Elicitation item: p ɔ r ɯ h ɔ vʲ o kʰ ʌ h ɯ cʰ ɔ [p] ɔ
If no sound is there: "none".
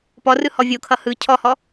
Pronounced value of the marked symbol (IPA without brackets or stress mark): h